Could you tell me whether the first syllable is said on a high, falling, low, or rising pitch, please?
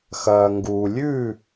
low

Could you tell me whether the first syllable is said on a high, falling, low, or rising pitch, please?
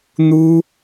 high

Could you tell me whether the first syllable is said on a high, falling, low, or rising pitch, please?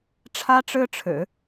high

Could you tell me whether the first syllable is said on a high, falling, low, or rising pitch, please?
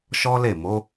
high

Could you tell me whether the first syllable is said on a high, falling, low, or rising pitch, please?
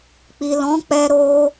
low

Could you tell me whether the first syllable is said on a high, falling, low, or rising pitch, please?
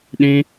high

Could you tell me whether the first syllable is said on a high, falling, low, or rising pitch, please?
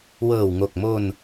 low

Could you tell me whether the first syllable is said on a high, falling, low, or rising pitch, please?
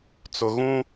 low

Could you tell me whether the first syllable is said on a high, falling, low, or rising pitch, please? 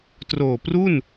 low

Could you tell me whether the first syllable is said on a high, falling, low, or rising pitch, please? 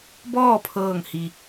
falling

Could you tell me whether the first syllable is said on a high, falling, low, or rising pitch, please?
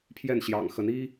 falling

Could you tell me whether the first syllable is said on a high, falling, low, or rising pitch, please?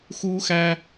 high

